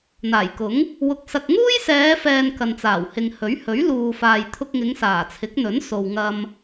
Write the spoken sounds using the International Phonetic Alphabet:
n̪ aː˨˩ j k ʊ˨˥ ŋ | w ʊ˧ k̚ s ɐ˧ k̚ ŋ uː˥ j s ɛː˨˧ f ɛː˨ n k ɐ˨ n t͡s aː˨˩ w h ɪ˨ ŋ h ɵ˨˥ ɥ h ɵ˨˥ ɥ l uː˨ f aː˨ j t̪ʰ ʊ˧ k̚ ŋ ɪ˨˧ ŋ s aː˨˩ t͡sʰ ɪ˨˥ k̚ n̪ ɵ˨˥ n s o˨ w ŋ ɐ˧ m

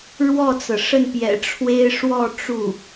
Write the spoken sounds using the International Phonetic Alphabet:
ɻ w ɔ˥˩ t͡s ɤ˩ ʂ ə˥˩ n p j ɛ̰˨˩ ʈ͡ʂʰ w e˥ ɪ̯ ʂ w ɔ˥˧ ʈ͡ʂ u˥˩

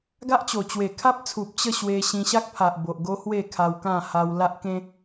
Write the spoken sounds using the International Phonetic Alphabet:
ɡ a˦ ʔ t͡ɕ o˨˩ t͡ɕ w e˨˩ kʰ a˦ p̚ t͡sʰ u˨ p̚ t͡ɕ ə˥˧ ɕ w e˧ ɕ ĩ˧ ɕ a˦ k̚ pʰ a˨ ʔ b o˨ ʔ ɡ o˦ h w e˥˧ kʰ a˧ w k ã˥˧ h a˧ w l a˦ ʔ k ẽ˦

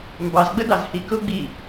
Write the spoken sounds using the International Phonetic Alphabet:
m b ɑ z ɡ͡b ə d ɑ z h i k ʊ ɡ͡b i

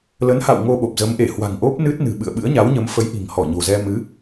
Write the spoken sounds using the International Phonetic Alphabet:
l ə˨˦ n h a̰˧˨ w ŋ o˧ ɓ o˨˩ p̚ z ə˨˦ m ʔ e˧˩ h w a̤˨˩ ŋ ʔ o˦˥ p̚ n ɨ˦˥ t̚ n ɨ̤˨˩ ɓ ɨ̰˧˨ ə̯ ɓ ɨ̰˧˥ ə̯ ɲ a˨˦ w ɲ ə˨˦ m f ə˨˦ j ʔ i̤˨˩ ŋ h ɔ˧˩ ɲ o̤˨˩ z ɛ˧ m ɨ˨˦

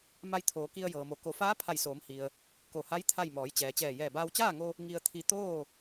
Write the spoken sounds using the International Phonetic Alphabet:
m a˧ j t̪ʰ oː˩˧ k i˧ ə̯ j ɤː˩ m o˩˧ k o˩˧ f aː˧˥ pʰ a˧˩ j s oː˩˧ m h i˩ ə̯ | k o˧˩ h a˧˥ j t̪ʰ a˥˨ j m ɔː˩˧ j t͡ɕ ɛː˩ t͡ɕ ɛː˧˩ j ɛː˧˩ b aː˧ w t͡ɕ aː˥˨ ŋ o˧ | ŋ i˧ ə̯ t̪ʰ i˧ t̪ oː˥˨

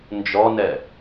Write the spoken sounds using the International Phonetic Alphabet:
n d͡ʒ ɔ n ɛ

